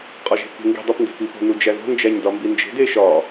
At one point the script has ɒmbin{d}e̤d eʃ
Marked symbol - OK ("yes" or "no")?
no